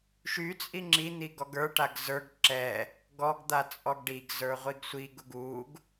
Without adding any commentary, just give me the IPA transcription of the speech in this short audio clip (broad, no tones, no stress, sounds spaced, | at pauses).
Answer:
ʃ y t͡sʼ i ŋ͡ǁ i n̪ i ɡ ɔ ɡ ə˞ ʈ a ɡ z ə˞ ɡ ǁ ɛ | ɡ ɔ ɡ d̪ a t͡sʼ ɔ ɡ ɖ i ɡ z ə˞ ʁʷ i ɡ sʷ i ɡ u ɡ u ɡ